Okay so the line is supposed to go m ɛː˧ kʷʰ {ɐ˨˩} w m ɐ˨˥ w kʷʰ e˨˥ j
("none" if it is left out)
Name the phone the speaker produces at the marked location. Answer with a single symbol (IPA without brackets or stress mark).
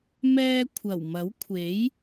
ɐ˨˩